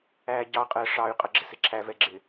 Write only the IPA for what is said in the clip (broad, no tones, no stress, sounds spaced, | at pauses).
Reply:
æː ɟ ɑ qʼ əː ʂ ɑ y̯ qʼ ʌ ɡ͡ǁ ɪ s ɪ ǁʰ æ v ɛ ɡ͡ǁ ɪ